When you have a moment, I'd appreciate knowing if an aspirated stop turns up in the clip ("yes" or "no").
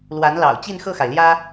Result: no